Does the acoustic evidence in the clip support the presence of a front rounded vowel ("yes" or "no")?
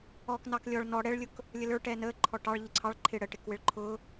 no